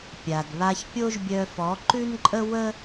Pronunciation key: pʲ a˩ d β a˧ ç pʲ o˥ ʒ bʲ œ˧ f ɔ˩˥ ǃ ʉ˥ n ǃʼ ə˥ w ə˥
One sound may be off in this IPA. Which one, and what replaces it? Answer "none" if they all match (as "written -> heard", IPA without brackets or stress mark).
none